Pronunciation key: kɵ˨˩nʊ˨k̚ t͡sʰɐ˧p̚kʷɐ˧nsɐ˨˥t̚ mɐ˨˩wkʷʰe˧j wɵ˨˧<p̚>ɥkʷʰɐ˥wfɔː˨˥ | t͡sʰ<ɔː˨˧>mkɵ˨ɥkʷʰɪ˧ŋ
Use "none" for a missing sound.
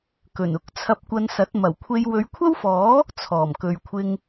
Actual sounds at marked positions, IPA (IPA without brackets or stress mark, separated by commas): none, ɔː˨˩